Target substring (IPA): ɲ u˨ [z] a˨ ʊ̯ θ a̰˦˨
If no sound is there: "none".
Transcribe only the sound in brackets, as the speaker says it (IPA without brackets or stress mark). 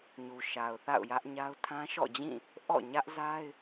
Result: ʃ